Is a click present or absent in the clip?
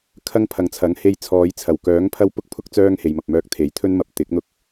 absent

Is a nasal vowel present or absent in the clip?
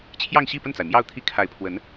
absent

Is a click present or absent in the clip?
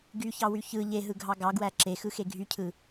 present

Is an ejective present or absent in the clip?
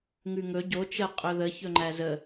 present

